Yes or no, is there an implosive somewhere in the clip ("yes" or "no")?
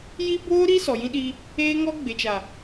yes